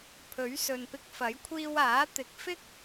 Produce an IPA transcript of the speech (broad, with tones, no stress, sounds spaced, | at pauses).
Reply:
pʰ ɵ˨˥ ɥ s ɵ˨ n p ɪ˧ k̚ f ɐ˨˥ j kʷʰ iː˧ w aː˨˥ t̪ ɪ˨˥ k̚ f ɪ˥ k̚